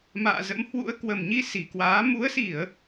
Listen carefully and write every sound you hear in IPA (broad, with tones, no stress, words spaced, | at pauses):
ma̰ː˧˨zə̰˧˥mhwṵ˧˥ə̯ kwə˨˩mɲi˧ si˨˩kwaː˨˦ mu˨˦ə̯si˧˩˨ə̯